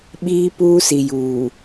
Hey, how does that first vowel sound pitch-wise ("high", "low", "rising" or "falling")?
high